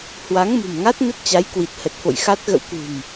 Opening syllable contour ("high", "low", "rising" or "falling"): rising